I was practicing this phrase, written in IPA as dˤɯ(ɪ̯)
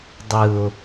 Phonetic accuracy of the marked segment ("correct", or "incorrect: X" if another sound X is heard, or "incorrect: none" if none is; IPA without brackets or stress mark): incorrect: ʊ̯